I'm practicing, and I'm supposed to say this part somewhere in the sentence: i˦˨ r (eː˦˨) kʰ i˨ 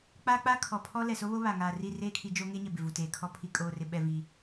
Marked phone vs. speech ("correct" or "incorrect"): correct